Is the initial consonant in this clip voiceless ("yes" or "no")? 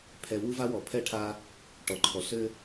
yes